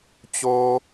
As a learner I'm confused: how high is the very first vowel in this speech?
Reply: mid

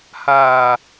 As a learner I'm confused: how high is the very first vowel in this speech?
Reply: low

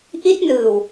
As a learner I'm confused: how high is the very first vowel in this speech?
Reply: high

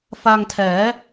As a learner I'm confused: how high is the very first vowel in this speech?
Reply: low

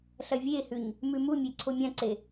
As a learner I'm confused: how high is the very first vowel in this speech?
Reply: low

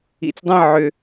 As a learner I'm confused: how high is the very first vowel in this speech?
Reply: high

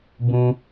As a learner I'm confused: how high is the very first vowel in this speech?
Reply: high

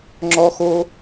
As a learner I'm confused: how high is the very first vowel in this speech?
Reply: mid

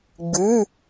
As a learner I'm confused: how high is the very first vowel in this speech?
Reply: high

